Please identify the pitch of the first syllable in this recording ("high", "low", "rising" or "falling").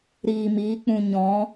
low